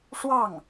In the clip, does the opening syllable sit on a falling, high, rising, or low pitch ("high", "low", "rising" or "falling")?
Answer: falling